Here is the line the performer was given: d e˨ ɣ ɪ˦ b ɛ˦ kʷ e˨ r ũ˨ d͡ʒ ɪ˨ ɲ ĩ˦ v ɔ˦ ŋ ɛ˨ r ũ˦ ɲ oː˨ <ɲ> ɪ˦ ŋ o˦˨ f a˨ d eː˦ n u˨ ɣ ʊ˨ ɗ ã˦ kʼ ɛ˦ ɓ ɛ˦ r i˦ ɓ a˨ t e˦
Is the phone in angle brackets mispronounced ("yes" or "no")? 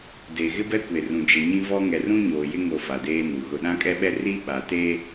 yes